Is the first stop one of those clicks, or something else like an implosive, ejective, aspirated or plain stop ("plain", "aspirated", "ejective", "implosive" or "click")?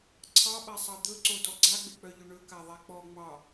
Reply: click